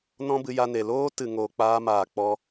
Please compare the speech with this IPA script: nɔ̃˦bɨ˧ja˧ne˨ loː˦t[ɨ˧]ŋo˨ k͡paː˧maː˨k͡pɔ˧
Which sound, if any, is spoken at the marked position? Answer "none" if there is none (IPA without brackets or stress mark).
ɨ˨